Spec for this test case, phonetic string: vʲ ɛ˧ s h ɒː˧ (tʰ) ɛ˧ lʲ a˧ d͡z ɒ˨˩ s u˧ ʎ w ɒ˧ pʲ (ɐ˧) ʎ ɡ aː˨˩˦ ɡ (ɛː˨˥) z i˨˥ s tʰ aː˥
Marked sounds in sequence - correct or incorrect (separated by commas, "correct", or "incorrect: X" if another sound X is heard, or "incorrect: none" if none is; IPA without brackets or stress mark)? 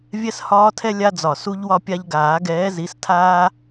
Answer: correct, incorrect: a˧, correct